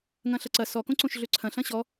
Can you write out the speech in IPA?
ŋ ɐ̃ ɬ ɐ ǀ ɐ s ɔ k õ ǀ õ ʃ ɮ ø ǀʰ ɐ̃ ɬ ɐ̃ ɕ ɔ

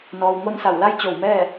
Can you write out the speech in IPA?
n ɔː˩ w ŋ o˥˨ n s a˧˩ w l a˥˨ j t͡ɕ o˧˩ w m ɛː˥˨

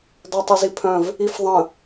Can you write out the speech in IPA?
dˤ o tˤ u z i pʰ œ̃ v | i f ðˤ ə̃

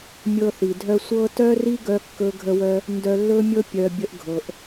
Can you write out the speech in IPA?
mʲ ɤ˧ θ i˩ dʱ œ˧ sʷ ɤ˥ t œ˥ r i˥ ɡ œ˥ kː ɵ˥ ɡʱ ə˥ w œ˥ | n d œ˧ lː ɵ˥ mʲ ɤ˥ pʲ œ˧ bʲ ə˧ ʔ ɡʱ ɤ˩ ʔ

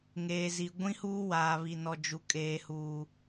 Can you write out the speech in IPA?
ŋ eː˨ z i˨ ɡʷ ĩ˦ h uː˦ w aː˨ β i˨ n ɔ˨ d͡ʒ u˨ kʼ eː˨ h uː˨

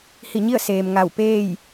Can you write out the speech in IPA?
h i˧˩ ɲ i˥˨ ə̯ s eː˩ m ŋ a˧˩ w p eː˥˨ j

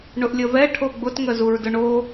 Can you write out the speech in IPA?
ɳ ʊ ʔ lʲ ə v ɛ ʈʰ o ɡ͡b ʊ t ŋ ə z u ɹ d ʊ ɳ o

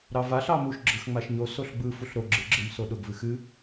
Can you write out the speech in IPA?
ɾ ɑ v a ɬ ɑ m u ʃ ɡ͡ǁ ɯ x ŋ͡m a ʃ ɲ o s o ɬ ɡ͡b ɯ f u ɬ ɾ o ɡ͡ǁ ɨ ɡ͡ǁ ɯ m s o ɗ ʊ ɡ v ɨ x ɨ

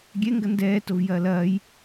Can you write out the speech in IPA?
ɡʲ ɛ ŋ ɡ ɐ n d ɛː t o v j ɐː l ɐː j

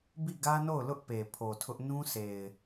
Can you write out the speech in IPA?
b i˦˨ ɡ ä˦ n o˦˨ ʊ̯ l ʊ˦ ʔ p e˨ pʰ o˨ tʰ ʊ˦ ʔ n ũ˦ sʰ e˨ ɪ̯

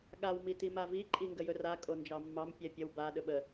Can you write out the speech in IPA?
ɠ a w m i t i m a v i ǃʼ i ŋ ɡ ə j ɵ r a kʼ o n d͡ʒ ɑ mː ɑ m pʲ ɛ pʲ ə w b a ɗ ɵ ɓ ə

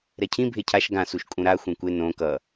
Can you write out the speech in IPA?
ɾ ɛ cʰ ĩ bʱ e cʰ a ʃ ɡ ã s u ʃ kʼ ũ ɾ a xʷ ẽ kʷ e n õ k ʌ

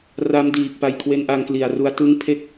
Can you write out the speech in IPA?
r a˦˥ m d iː˨˩ k̚ p a˧ j kʰ w e˦˥ n ʔ a˧ ŋ k l i˨˩ a̯ r u˧ a̯ t ɯ˦˥ ŋ pʰ e˥˩ k̚

